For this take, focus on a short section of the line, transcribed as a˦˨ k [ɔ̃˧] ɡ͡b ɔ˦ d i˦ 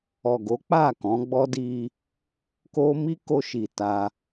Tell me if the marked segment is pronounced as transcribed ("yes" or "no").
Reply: no